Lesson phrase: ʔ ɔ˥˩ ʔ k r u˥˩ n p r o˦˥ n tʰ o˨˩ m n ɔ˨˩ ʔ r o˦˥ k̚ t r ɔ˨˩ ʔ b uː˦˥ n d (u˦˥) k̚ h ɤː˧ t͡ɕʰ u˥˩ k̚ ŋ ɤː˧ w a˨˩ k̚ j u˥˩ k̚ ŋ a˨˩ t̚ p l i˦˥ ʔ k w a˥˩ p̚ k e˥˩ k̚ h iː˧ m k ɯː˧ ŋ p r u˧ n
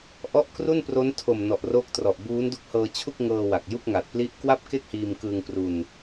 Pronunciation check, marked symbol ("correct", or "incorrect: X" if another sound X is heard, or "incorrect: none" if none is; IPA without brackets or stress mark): correct